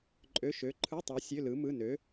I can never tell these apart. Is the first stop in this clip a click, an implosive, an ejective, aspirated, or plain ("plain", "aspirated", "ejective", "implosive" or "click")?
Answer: click